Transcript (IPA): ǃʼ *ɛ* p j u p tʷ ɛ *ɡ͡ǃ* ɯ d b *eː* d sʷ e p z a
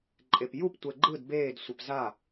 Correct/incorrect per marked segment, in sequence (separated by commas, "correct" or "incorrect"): incorrect, correct, correct